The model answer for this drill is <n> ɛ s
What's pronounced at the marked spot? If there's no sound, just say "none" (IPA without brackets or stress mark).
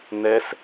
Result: n